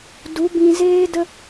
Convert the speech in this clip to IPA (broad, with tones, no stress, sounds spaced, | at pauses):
d u˨˦ b ĩ˧ z eː˦ d ə˦